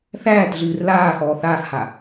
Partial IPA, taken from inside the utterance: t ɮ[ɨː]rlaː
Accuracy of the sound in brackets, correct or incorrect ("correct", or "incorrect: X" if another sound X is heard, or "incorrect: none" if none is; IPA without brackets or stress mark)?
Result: correct